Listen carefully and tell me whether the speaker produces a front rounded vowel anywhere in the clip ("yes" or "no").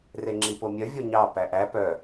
yes